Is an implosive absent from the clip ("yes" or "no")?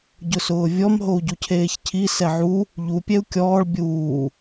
yes